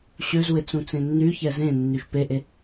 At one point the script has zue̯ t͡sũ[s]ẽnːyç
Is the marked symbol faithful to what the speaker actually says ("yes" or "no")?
no